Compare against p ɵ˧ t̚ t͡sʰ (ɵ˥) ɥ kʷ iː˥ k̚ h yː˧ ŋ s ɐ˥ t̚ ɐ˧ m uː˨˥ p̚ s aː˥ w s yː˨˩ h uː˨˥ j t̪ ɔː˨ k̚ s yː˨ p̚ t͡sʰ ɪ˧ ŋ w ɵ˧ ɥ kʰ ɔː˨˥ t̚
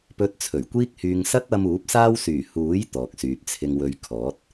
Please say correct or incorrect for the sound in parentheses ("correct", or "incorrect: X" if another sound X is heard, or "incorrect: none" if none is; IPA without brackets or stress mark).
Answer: incorrect: ɵ˨˩